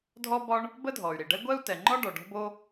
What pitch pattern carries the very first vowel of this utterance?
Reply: high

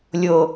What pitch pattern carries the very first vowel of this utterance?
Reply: low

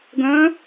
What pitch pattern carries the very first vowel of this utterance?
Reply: rising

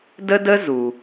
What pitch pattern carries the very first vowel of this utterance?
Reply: high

